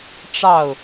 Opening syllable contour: falling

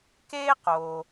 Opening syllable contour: high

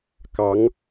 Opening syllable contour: rising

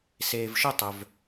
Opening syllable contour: low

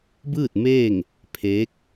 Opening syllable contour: falling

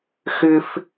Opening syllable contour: high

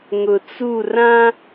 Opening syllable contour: low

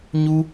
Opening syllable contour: high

